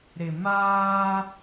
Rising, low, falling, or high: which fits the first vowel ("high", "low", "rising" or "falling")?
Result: low